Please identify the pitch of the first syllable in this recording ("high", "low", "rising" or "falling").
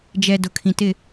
low